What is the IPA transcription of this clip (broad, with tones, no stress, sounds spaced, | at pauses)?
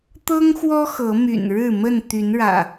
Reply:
t̪ ɤ˦ ŋ x w ɔ˦ x ɤ˨˦ m y̰˨˩ n ɻ ɻ̩˥˨ m ə˥˨ n t̪ y˨˦ n ɻ ä̰˨˩